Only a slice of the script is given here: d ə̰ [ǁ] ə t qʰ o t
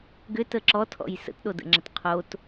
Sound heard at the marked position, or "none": ŋ͡ǁ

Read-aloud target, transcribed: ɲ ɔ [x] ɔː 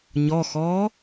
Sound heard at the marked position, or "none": x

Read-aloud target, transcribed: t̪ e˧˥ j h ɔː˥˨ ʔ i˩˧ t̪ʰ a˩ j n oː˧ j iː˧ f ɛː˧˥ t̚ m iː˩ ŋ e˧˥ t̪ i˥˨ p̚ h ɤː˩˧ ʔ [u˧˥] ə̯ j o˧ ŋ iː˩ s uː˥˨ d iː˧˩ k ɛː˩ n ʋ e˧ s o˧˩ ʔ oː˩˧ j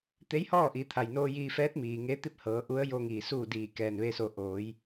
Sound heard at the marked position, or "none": u˧˥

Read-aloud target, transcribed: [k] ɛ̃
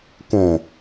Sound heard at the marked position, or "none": k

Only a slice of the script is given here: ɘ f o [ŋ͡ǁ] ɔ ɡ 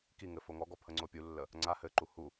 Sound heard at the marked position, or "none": ŋ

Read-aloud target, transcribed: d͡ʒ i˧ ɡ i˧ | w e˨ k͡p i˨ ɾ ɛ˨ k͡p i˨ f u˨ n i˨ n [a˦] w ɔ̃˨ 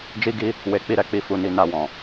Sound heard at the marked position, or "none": a˨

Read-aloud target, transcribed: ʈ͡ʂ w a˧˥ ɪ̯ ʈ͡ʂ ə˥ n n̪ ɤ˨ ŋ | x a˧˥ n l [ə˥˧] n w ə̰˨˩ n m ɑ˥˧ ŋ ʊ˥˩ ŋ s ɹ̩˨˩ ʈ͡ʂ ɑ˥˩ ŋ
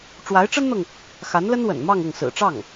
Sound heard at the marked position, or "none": ə˥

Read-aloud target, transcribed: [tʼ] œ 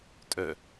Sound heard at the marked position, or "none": tʼ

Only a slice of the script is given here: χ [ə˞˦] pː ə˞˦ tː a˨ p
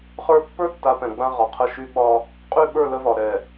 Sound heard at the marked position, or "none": ə˞˦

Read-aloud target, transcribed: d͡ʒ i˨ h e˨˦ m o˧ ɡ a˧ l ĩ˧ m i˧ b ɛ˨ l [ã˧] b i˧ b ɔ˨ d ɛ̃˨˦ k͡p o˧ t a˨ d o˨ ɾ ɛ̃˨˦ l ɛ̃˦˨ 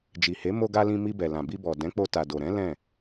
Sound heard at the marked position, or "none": ã˨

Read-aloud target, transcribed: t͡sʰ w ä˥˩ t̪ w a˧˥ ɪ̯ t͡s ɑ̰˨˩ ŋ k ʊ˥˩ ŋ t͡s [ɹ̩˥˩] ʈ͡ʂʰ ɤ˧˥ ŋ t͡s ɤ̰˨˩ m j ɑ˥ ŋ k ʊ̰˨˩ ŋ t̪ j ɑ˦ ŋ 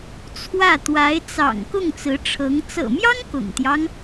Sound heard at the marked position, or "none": ɹ̩˧˥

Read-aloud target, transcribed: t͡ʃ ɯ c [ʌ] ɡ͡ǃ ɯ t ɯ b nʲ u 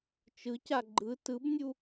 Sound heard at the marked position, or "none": a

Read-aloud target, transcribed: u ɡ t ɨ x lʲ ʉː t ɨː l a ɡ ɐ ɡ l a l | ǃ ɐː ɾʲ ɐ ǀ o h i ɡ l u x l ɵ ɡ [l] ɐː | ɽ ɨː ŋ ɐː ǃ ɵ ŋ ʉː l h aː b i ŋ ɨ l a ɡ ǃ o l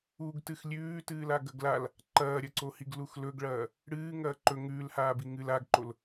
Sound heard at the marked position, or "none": ɭ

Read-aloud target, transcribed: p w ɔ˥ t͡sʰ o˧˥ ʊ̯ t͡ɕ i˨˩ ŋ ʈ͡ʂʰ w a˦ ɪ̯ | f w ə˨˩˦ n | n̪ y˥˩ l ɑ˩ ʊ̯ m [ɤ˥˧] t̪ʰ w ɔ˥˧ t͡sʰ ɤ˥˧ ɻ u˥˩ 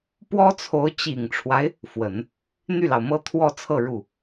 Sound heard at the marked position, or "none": ɤ˥˧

